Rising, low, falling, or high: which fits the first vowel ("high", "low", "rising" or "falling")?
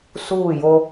falling